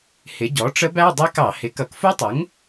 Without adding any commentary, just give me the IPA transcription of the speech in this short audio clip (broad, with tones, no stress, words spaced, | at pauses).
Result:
hɪ˩˥ ɟɔ˩˥ʈ͡ʂə˦˥bæ˧˥˧ dˤi˦˥kɑ˧˩˧hɪ˩˥ kʌ˩˥kfu˦˥tˤʊ˩˥ŋ